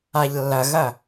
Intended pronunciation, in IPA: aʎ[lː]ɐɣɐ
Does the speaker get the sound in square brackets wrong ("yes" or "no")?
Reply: no